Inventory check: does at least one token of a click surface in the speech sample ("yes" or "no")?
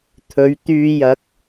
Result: no